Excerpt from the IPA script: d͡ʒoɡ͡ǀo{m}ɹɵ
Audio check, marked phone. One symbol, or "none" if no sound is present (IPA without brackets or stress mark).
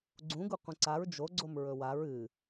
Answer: m